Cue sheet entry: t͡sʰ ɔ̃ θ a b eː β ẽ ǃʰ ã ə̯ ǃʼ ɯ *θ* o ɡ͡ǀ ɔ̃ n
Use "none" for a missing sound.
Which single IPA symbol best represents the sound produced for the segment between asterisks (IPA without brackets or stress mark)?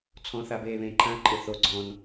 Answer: θ